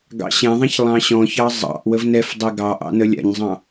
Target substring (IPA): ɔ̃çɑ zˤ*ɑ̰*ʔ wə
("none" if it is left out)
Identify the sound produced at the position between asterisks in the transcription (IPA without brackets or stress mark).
ɑ̰